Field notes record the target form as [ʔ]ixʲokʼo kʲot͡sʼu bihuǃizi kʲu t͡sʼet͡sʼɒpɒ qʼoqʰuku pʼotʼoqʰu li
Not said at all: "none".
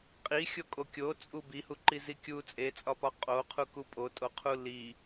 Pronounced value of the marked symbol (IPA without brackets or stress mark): qʼ